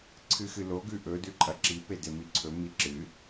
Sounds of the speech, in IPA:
ǀʰ ɨ x ɨ l o ɡ ʉ ʔ ɵ d ʉ ǃʼ ɐ ǁ i p e d e m i ǀʰ ɵ m i ǁ ɨ

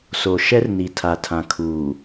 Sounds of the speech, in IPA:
s o˨ ʃ ɛ˦ r n i˨ tʰ a˨ tʰ ã˨ kʰ uː˨

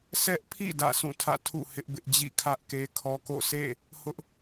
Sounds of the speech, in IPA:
s ɛ˦ ʔ pʰ ḭ˦˨ d ä̰˦˨ sʰ ũ˦˨ tʰ ä̰˦˨ tʰ ṵ˦˨ h ɪ˦ ʔ b ɪ˦ ʔ d͡ʑ ḭ˦˨ kʰ ä˦ ʔ k e˦ kʰ ɔ˦ k o̰˦˨ s ḛ˦˨ | h ʊ˦ ʔ

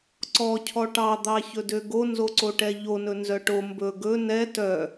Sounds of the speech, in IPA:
ǀ ɔ cʰ ɔ ʈ ɑ d̪ ɑ ç ɵ d ø ɡ o n z o ǀ o ʈ ɛ ʎ o n ɵ n z œ ʈ o m b ɵ ɡ ɵ n ɛ t œ

